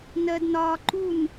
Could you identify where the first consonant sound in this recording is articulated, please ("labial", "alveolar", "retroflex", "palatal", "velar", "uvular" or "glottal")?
alveolar